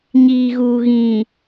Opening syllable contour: low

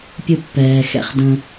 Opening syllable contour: high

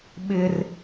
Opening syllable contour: high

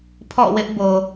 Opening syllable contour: falling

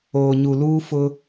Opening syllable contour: low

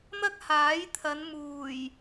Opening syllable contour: high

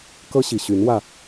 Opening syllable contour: high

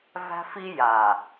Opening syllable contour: high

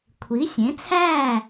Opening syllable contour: rising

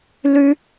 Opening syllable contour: high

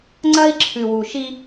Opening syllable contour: high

